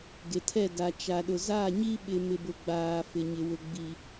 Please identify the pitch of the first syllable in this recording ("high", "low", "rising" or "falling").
low